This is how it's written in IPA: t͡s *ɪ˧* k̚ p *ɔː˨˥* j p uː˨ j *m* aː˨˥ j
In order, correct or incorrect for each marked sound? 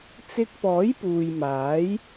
correct, correct, correct

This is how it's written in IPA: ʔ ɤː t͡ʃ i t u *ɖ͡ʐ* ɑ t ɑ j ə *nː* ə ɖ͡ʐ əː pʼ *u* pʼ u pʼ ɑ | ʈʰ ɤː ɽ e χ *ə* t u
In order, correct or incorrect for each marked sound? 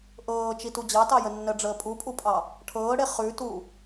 incorrect, correct, correct, incorrect

